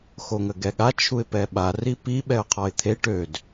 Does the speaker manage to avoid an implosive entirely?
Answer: no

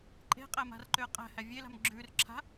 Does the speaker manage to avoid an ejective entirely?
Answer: no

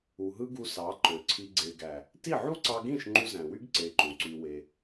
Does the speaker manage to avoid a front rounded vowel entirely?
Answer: no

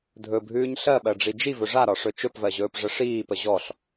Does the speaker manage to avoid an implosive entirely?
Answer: no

